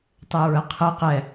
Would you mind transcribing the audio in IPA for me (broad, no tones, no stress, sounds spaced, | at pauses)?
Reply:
tˤ ɛ ɹ ə qʰ ə q ɛ